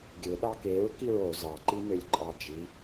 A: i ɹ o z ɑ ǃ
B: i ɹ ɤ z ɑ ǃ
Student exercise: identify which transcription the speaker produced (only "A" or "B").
A